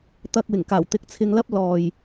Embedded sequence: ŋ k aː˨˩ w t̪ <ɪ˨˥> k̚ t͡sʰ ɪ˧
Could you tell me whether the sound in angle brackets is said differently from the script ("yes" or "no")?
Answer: no